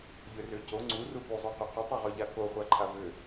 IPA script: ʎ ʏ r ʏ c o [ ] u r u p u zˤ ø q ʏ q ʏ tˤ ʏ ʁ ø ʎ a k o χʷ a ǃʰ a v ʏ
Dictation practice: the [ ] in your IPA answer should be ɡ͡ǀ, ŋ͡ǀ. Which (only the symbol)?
ŋ͡ǀ